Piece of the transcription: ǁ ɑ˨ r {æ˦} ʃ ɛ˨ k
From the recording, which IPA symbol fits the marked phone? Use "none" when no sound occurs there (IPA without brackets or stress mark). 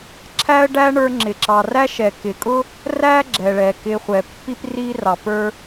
æ˥